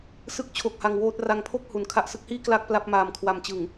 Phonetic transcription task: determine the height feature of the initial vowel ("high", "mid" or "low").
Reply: high